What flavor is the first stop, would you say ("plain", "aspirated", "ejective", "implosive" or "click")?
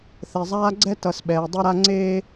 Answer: click